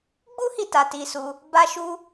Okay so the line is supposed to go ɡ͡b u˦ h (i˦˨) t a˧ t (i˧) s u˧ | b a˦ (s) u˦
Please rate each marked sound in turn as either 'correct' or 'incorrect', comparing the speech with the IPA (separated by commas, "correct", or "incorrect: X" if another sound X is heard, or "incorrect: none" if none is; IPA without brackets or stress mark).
correct, correct, incorrect: ʃ